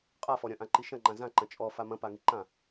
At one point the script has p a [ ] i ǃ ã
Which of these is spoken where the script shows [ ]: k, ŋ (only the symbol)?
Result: ŋ